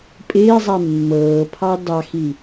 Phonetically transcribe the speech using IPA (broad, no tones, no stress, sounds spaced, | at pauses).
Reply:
pʼ ɪː zˤ ɛ mː ɤː pʰ ɑ d ɑ x i